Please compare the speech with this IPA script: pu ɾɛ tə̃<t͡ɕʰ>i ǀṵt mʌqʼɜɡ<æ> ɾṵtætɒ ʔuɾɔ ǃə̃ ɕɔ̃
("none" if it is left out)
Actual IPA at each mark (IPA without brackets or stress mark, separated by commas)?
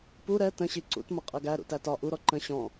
ɕ, æ